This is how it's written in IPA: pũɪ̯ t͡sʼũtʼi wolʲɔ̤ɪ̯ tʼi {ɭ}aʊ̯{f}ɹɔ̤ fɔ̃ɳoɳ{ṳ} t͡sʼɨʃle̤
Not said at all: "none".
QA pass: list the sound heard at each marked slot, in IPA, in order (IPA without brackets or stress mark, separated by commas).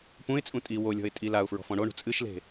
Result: l, f, ṳ